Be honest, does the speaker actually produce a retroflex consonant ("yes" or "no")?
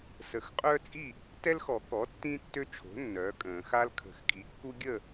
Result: no